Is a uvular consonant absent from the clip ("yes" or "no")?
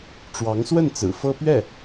yes